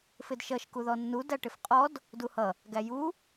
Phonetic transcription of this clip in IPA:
fɪdʃʌʃ kuðɔnːu dæʈɪfqʼɔd | duhʌ | ɡæju

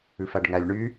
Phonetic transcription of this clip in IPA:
ʉfæɖŋælʲ ɳy

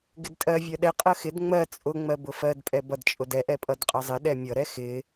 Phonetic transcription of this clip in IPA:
ɡɪdtʼɜ vʲɜɗɛ qʼɜxɪd ŋ͡mɜ t͡sʼʊ ŋ͡mɜbʊfɜd pʼɛbʌd t͡ʃʼʊdɛ ʔɛpʼʌdqʼʌzˤɪ ɗɛmʲʌ ɾɛxɪ

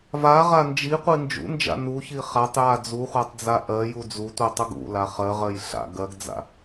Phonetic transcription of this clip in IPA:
vaʁa nd͡ʒiqʷi nd͡ʒṵnd͡ʒa̰ nuçi χatˤja d͡zuχʷatˤd͡za ʔɜju d͡zutʷitˤuɡ ṵla χɜʁɜj ɬa̰ ɡɜɡd͡za̰

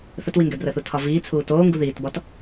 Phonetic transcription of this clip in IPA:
θətwiŋɡɛbrəːθ utʰɒviːt͡sʰuː toːŋɡu ðiːtbɒt

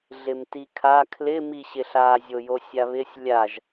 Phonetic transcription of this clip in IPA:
ɮɪmtikʰa kʰlɪ miɕɪɬa zʲojosʲaβɪsʲ lʲaʒ

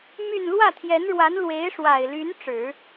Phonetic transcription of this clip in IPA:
my˥˧n lwä˥˩t̪ʰjɛ˧˥nɻwa˧˥n lwe˧˥ɪ̯ʂwa˨˩ɪ̯ly˧˥n ʈ͡ʂɻ̩˨˩˦

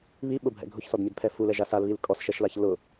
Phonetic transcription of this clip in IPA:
βiɓʊbʱɛ̰ ɡʱʊçsɔdmʲɛdpʰɛ fulɛʒa salβil kʼɔsʃɛʃlaç lʊ

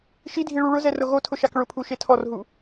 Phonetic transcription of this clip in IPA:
ʃidʱi ɭuɭʊzɛ rʊɣotʰʊ ʃakɭʊpʰu ʃetʰɔrɦu

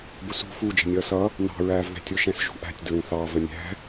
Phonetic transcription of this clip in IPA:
bʊsṳ fu d͡ʒə̤nʲʌːsʌ | nɑ̤ ɹæːvðæ̤tʲʊ ʃɛ̃sʒṳʔæ̤tʲ dɹũθɑ vənʲæ̤

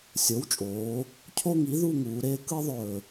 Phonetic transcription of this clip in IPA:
sʲo˩˥wt͡ʃʼoː˩˧ | cʰo˦ŋi˩˥ ðu˦˨ ŋuː˩˧ɾeː˦ kɯ˦ðˤɵː˨˩

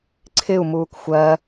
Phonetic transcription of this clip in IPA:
ǀʰɪu̯ muːkxʷɜ

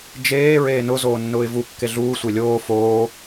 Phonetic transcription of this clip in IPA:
d͡ʒeː ɹeːnʊ zoːnːʊːɪ̯vu kːeɮuː sʷelʲoː foː

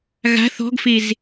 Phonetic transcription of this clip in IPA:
ɣa̤ θɔ̤ɡfez

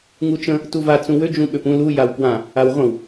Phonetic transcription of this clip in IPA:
ŋut͡ʃə̃ | tuva t͡sũwø d͡ʒũɓøpũ lu jawpwã | awʁʷə̃w

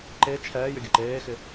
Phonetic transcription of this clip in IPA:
ǃe t͡ʃʰɛːjʏ ɡʲəǃeːxɪ

